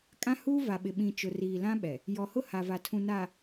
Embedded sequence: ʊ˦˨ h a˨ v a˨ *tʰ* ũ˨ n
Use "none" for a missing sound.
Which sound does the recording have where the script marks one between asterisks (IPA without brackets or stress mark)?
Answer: tʰ